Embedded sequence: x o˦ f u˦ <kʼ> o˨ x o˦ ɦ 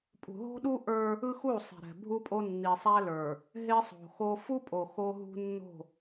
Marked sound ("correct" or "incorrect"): incorrect